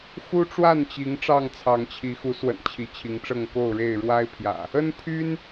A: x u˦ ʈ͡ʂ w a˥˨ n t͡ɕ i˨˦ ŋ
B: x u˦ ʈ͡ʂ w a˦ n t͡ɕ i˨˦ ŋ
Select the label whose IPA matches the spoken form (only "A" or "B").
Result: A